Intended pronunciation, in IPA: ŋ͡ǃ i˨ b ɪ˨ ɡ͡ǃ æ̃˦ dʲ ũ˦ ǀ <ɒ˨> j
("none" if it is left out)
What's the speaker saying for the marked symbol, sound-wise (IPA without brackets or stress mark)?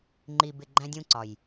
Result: ɒ˨